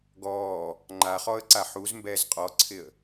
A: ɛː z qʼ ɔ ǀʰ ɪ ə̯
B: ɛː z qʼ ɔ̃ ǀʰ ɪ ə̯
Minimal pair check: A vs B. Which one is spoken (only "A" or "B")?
A